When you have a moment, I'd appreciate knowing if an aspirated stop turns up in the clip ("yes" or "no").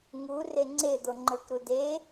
no